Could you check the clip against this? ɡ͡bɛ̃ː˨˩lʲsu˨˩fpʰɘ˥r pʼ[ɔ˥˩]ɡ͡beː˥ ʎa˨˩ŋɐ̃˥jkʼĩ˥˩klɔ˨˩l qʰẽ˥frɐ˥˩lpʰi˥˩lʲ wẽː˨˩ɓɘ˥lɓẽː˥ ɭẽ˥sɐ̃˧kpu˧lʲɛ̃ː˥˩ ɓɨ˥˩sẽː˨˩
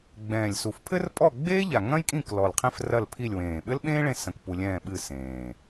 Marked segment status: correct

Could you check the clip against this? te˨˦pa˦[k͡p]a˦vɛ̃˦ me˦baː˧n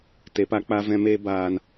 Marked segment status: correct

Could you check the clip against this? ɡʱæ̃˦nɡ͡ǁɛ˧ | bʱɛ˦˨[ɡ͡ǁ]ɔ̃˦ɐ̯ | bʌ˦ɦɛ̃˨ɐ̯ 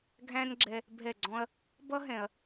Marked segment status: incorrect: ɡ͡ǀ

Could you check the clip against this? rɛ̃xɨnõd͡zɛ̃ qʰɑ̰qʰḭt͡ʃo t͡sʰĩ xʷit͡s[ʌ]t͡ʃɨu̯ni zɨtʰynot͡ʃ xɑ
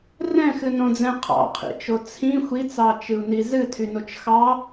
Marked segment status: incorrect: ɑ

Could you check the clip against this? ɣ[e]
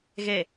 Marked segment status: correct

